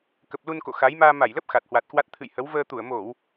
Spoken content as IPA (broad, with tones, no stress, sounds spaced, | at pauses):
k ə˨˩ p̚ l u˧ n k o̰˧˨ x a˨˦ j m aː˧ m a˧˩ j l ə˦˥ p̚ x a˨˩ t̚ h w a˨˩ t̚ k w a˦˥ t̚ t̪ʰ ɨ̰˧˨ j h ə˨˦ w v əː˧ t̪ u˧˩ ə̯ m o˧˩˨ w